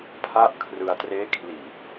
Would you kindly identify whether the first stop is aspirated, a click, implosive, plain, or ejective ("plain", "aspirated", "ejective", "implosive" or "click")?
aspirated